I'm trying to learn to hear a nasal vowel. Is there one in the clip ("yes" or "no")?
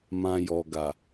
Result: yes